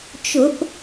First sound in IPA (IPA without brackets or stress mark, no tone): t͡ʃ